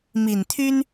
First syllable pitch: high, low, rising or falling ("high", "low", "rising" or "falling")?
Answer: low